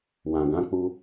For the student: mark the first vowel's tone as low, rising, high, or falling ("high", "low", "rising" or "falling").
low